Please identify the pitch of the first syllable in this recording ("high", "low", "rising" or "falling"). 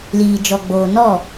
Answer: low